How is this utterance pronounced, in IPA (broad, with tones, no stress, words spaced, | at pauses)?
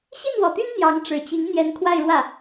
ɕi˥˩nwɔ˨˩t̪y˥n n̪jɑ˧˥ŋ ʈ͡ʂɻ̩˨˩t͡ɕi˧˥ŋ n̪jɛ˧˥nkʰwa˥˧ɪ̯ɻwä˥˩